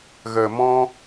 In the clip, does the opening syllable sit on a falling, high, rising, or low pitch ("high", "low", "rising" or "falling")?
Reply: low